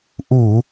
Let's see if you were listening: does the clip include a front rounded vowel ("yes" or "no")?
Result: no